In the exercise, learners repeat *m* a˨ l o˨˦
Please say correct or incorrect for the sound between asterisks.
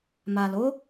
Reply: correct